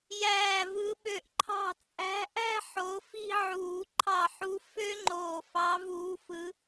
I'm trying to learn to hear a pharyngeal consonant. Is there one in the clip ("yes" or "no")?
yes